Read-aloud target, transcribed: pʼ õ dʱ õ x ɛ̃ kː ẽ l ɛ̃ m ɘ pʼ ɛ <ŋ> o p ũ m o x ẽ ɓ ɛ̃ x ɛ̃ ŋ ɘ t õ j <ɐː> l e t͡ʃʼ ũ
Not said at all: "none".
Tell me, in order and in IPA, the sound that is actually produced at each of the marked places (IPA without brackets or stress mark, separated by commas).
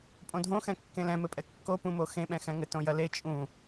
kː, ɐ